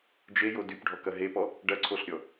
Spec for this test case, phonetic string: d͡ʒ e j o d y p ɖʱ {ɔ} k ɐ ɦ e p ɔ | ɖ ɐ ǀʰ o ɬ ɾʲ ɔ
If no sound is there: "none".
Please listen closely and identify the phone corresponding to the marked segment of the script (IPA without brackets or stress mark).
ɔ